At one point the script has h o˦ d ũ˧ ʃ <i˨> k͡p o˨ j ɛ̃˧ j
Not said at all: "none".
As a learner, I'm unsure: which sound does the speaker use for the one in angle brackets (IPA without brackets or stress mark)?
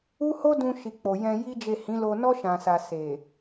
i˨